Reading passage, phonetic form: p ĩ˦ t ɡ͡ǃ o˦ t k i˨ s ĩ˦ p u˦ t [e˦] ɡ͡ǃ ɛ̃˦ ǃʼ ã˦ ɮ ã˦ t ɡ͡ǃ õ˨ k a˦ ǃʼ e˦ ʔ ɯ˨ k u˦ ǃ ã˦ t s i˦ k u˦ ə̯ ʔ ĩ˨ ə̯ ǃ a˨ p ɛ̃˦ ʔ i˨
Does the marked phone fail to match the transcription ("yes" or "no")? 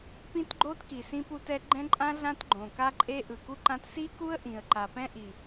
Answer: yes